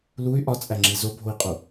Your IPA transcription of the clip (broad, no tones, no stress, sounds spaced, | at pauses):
l u y̯ ʔ ɒ t͡sʼ æ ŋ͡ǁ i z o bʱ o i̯ qʼ u